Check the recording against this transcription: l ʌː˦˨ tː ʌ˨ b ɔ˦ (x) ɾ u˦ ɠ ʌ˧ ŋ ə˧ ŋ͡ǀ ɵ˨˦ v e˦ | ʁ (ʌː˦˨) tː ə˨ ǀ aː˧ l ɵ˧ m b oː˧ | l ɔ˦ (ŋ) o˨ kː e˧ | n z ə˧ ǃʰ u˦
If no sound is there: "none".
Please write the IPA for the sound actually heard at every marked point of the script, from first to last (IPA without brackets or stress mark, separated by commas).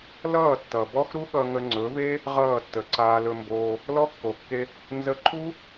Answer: x, ʌː˦˨, kː